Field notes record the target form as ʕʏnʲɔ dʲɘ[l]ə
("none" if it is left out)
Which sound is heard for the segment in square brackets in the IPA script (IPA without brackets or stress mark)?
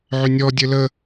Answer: l